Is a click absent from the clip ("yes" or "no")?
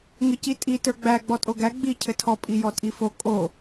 yes